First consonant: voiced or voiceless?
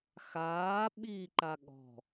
voiceless